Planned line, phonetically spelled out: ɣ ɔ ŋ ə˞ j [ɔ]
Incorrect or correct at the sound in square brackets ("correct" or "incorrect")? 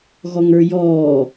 incorrect